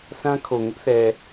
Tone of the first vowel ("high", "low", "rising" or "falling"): high